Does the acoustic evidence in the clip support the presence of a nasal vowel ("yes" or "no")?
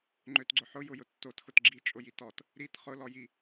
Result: no